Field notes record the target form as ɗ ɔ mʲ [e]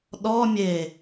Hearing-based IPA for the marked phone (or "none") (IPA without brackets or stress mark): e